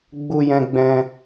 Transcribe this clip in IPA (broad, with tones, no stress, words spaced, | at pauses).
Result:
ɡ͡bu˧jɛ̃˧ɡ͡bɛ̃˧